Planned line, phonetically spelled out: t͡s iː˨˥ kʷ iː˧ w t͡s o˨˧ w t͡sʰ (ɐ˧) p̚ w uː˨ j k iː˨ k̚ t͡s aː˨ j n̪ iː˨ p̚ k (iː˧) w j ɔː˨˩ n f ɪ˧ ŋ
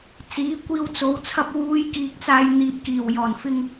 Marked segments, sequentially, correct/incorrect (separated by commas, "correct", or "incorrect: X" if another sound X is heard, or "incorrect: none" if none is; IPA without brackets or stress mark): correct, incorrect: iː˨˩